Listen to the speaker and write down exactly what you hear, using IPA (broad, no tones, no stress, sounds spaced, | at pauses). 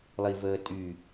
lˠ i v əː tʼ y